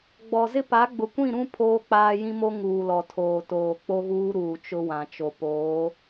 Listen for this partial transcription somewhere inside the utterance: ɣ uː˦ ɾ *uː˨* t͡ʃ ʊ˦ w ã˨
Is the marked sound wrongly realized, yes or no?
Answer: no